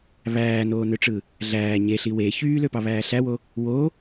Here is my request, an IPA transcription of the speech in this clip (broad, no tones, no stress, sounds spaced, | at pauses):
β æː n oː n ø ʈ͡ʂ ɯ | ɮ æː ɲ e ɬ i w e ç yː l ø p ɑ β æː ɬ æ w o | w o